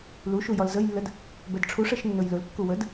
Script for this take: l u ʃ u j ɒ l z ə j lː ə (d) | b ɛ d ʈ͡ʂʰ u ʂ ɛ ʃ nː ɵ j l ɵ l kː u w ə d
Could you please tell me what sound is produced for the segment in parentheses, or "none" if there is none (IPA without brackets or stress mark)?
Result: d